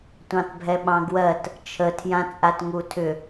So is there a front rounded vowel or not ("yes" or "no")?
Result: yes